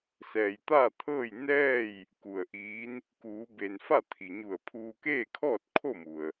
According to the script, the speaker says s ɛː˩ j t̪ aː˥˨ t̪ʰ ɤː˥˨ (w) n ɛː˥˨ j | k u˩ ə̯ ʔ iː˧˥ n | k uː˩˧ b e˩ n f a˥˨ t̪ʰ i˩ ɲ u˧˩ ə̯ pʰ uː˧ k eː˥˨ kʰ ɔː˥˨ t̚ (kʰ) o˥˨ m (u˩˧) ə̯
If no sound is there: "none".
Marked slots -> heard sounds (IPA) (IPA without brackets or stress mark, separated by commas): j, kʰ, u˩